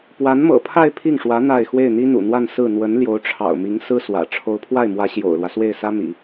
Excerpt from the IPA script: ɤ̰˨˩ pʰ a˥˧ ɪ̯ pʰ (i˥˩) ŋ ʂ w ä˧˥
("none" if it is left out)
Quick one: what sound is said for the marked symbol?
i˥˩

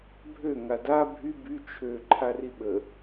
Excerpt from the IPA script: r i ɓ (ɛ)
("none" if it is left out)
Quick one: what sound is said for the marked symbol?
ə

